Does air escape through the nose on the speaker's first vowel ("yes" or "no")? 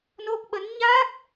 no